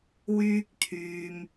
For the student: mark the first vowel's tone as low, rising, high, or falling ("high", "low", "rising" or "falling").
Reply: high